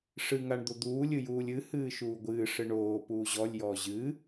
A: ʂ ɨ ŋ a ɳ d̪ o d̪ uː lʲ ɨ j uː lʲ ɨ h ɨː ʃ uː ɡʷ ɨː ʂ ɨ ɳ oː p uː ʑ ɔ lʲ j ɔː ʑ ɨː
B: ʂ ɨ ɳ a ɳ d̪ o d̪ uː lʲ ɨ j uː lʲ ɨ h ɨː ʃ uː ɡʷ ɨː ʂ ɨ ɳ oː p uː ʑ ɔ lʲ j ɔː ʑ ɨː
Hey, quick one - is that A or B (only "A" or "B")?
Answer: A